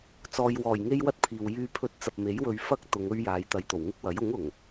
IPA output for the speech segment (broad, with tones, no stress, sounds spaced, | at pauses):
t͡s ɔː˨ j w ɔː˨˩ j ŋ e˥ j w ɐ˥ t̚ pʰ iː˨ w j yː˧ pʰ ɵ˧ t̚ t͡s ɐ˨ p̚ m e˨˥ j w ɵ˧ ɥ f ɐ˥ k̚ t̪ ʊ˨˧ ŋ ɵ˥ ɥ j aː˨˧ j t̪ ɐ˨˧ j t̪ o˨˩ w ŋ ɪ˥ k̚ w ɐ˨˥ j ʊ˨˥ ŋ ʊ˨˩ ŋ